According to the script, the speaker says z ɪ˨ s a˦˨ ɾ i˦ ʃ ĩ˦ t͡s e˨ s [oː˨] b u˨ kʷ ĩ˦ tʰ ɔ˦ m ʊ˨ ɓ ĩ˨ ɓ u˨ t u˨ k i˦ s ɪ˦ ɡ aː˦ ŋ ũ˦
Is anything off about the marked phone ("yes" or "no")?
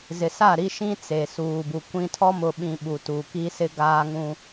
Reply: yes